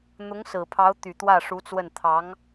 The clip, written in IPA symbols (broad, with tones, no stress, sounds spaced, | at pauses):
n̪ ʊ˧˥ ŋ s ɹ̩˨˩ pʰ ɑ˧˥ ʊ̯ t̪ y˨˩ t̪ w ä˥˩ ʂ u˧˥ t͡s w ə˥˩ n t̪ʰ ɑ˧˥ ŋ